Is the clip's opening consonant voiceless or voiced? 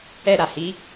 voiced